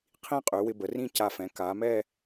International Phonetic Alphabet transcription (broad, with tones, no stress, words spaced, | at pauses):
qʰĩ˥˧qʼy˩˧ wɪ˧bə˩˧rĩ˥˧ ca˧˩fɛ̃˩˧ kaː˩˧mɛː˥˧